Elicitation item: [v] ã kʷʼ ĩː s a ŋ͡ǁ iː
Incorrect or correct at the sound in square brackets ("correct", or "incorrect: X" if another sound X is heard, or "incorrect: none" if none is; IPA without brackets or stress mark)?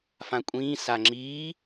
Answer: incorrect: f